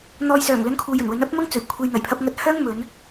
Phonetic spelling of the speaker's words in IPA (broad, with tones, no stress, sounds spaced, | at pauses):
n̪ ɔː˨ j s œː˨˩ ŋ l ɵ˧ n kʰ uː˨ j ɵ˨˩ n w ɵ˨˥ n ɐ˥ p̚ m ɐ˥ ŋ t͡s ɵ˨˩ ɥ kʷʰ e˨ j n̪ ɐ˨˩ j pʰ ɐ˧ p̚ ŋ ɐ˧ t̚ h œː˥ ŋ m ɵ˨˧ n